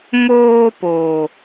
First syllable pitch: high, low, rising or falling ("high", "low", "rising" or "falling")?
high